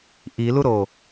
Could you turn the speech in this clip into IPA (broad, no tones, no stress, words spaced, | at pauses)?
ʔiluɾo